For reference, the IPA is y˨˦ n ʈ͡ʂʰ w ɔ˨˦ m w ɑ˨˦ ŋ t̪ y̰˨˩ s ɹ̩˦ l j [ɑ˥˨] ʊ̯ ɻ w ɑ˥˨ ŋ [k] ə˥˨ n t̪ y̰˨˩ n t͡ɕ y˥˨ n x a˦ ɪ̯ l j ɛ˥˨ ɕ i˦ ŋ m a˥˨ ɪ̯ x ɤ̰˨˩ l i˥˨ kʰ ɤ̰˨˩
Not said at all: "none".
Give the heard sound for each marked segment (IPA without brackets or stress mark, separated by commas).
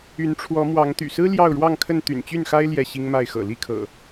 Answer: ɑ˥˨, kʰ